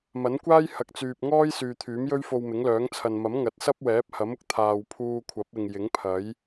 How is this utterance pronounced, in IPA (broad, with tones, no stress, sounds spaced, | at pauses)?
m ɐ˨˥ n kʷ aː˥ j h ɐ˨ k̚ t͡s yː˨ p̚ ŋ ɔː˥ j s yː˨ t̪ʰ yː˨˥ m j ɵ˥ ɥ f o˧ w m ɪ˨˥ ŋ l œː˨˥ ŋ t͡sʰ ɐ˨ n m ɐ˨˥ m ŋ ɐ˨˥ t̚ s ɐ˥ p̚ w ɛː˨˥ p̚ h ɐ˨˥ m ʊ˧ k̚ t̪ʰ aː˨ w pʰ uː˧ kʷʰ ɐ˨˥ p̚ ɪ˨ ŋ j ɪ˨˥ ŋ pʰ ɐ˨˥ j